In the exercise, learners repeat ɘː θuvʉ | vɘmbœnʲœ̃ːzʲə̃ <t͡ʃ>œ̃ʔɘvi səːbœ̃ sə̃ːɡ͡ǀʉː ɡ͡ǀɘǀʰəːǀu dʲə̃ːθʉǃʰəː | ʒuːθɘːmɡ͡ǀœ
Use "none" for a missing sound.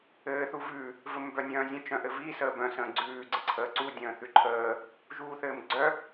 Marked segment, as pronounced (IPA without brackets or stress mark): t͡ʃ